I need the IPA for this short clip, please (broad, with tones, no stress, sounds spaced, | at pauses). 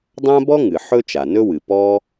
dˤ ã˥ b ɔ˥ ŋ ɨ˩ ħ ɵ˥ t͡ʃ a˩ n ɵ˥ w ɨ˩ p ɔ˥